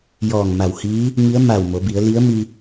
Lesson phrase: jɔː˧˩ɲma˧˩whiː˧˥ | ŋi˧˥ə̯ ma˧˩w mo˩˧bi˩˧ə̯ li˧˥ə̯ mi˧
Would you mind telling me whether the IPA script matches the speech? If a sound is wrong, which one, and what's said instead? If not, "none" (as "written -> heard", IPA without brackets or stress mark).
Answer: ɲ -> ŋ